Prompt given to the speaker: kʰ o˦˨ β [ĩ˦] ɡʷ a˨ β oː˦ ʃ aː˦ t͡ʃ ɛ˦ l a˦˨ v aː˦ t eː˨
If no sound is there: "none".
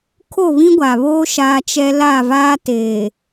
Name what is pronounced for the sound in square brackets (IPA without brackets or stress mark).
ĩ˦